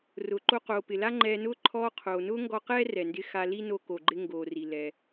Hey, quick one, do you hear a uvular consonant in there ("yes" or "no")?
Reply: yes